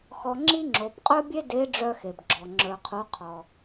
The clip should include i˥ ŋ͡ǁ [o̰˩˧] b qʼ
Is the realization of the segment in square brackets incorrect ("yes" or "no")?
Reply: yes